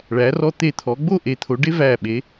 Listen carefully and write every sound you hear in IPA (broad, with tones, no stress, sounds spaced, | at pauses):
ɭ æ˩˧ r ɔ˧ t̪ e˧˩ t̪ʰ ɔ˩˧ ɡ͡b o˥˧ ʔ e˩˧ t̪ʰ o˩˧ ɖ e˥ v æ˧˩ ɓ e˩˧